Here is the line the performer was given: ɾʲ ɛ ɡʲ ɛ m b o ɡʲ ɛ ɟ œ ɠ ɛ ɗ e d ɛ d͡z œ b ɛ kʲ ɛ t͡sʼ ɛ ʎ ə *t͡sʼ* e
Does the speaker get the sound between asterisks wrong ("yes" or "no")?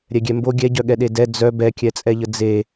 yes